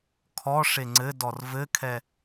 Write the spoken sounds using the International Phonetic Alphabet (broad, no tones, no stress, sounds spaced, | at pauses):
kʰ ɔ ʂ e ŋ͡ǀ ɘ d ɔ r v ɘ kʰ ɛ